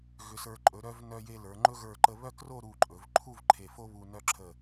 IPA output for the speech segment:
ɣʏ˩˧sə˞˩˧ ǃʼɵ˩˧ɾœ˧v nœ˧je˧lə˞˩˧ŋ͡ǃɵ˥ ɣə˞˧˩ǃə˧ βœ˥˧kro˥˧ ɾu˧˩ǃʼɵ˩˧vǃʰu˥˧v ǃʰe˧˩fo˥βu˧ nœ˥ ǁʰə˧˩

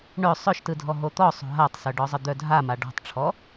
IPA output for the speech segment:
ɳœ sˤœʃtɯdʱɔ ɦot̪ɔsˤo̤ ɦatˤsœɖɔ zˤəd̪œdʱa maɖɔ̤tˤʈ͡ʂʰɔ

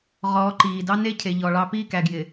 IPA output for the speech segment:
ʁɔː˨˦ǃiː˨ dɑ˦ne˦cʰe˨ ʎɔ˨ɭɑ˦ pi˦˨kæ˨ɡjɪː˨

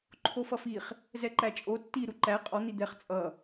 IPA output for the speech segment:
ǃʰofʌfiχ | zɛǃæt͡ʃʼo tːi ɾuǃæ qʼɔ n̪id̪ɛχ t͡sʼʌ

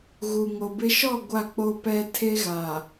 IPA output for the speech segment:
ɣu˨ŋo˨bɪ˦ ʃɔ˦˨ ɡʷa˦˨k͡po˦ pɛ˦ tʰe˦ɣa˨

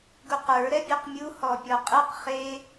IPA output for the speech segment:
ɡuqə˞ ɾɛbʲɔqmʲu hɔpʲɔqʼɛq χe

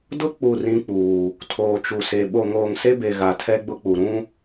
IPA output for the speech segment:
dʊ˦ k͡pu˦˨rĩ˦k͡puː˨ | tʰoː˨t͡ʃu˨se˨ ɓo˨ŋoː˨ŋse˦be˨ ɣa˨tʰɛ˦ɡ͡bʊ˦k͡pu˨ ɾũ˦

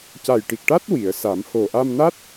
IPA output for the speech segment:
ca˨˩jʈi˨˩k̚ʈa˦˥t̚ wi˨˩˨ə̯sa˨˩˦m ho˨˩ʔa˧mna˦˥t̚

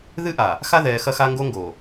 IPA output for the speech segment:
ðɨ˦ʔa˨ | xa˦ðɛː˨ xɐ˦xa˦ŋɡo˦ ŋɡo˨

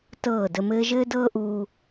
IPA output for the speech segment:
tɤː˦˨də˧ mɘː˧ʒɘː˦dɤː˦ ʔuː˦

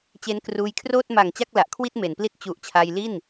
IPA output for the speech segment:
t͡ɕe˧n kruː˧jkʰroː˥˩t̚ ma˨˩ŋ t͡ɕa˥˩k̚la˨˩ʔkʰwi˥˩t̚ me˩˦npli˥˩t̚ t͡ɕu˨˩ʔ t͡ɕʰa˧jli˥˩n

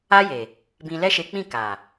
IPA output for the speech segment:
a˦je˨ | bĩ˧lɛ˦ʃe˧k͡pĩ˦˨ ka˨

